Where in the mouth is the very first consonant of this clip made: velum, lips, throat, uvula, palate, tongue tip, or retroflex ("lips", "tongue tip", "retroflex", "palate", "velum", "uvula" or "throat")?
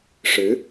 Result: retroflex